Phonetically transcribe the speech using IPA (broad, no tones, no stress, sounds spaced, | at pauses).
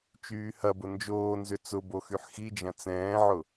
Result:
t͡ʃ yː h ɐ b ʊ n d͡ʒ oː n z ʏ t͡s ʊ b o x y ħ x i d͡ʒ ɐ̃ t͡s ɛ̃ː ʕ ʊ